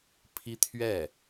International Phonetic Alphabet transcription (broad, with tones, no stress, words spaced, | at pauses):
pʰi˥t̪ʰɥɛ˥˩